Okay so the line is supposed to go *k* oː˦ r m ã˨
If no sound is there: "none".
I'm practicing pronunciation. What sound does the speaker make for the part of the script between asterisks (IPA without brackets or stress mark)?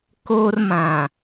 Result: k